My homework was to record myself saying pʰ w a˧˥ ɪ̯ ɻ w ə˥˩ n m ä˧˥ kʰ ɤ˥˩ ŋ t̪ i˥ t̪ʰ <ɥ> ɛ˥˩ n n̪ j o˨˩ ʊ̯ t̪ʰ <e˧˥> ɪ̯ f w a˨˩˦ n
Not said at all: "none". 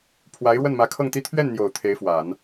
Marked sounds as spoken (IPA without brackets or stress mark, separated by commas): ɥ, e˧˥